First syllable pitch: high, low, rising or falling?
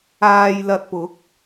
low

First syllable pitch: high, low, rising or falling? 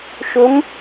rising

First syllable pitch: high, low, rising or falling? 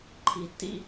low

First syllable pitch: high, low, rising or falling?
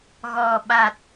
low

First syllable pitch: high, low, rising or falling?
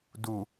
low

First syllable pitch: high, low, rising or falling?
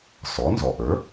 rising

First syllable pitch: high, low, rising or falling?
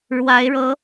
rising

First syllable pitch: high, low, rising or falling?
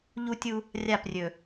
high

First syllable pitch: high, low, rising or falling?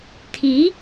rising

